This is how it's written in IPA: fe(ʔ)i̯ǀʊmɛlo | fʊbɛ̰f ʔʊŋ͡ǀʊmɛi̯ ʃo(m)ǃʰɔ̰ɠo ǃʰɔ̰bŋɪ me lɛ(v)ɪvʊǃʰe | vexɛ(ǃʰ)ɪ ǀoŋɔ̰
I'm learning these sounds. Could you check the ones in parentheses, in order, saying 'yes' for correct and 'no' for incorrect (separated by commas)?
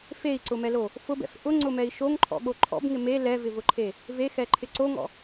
no, no, yes, yes